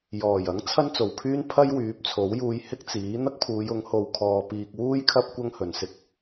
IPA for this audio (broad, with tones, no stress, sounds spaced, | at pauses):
j ɔː˨˩ j ɐ˨˥ ŋ t͡sʰ ɐ˥ n t͡s o˨˩ w pʰ yː˥ n pʰ ɐ˥ j w yː˨˥ p̚ t͡sʰ o˨˥ w j uː˧ j h ɪ˥ k̚ t͡s iː˨˥ n̪ ɐ˥ k̚ pʰ uː˨˧ j ʊ˨˥ ŋ h o˨˧ w kʰ ɔː˧ p iː˧ k̚ w uː˥ j kʰ ɐ˥ p̚ kʷ ɐ˥ ŋ h ɵ˨ n s ɪ˧ k̚